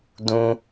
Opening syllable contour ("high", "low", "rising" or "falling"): high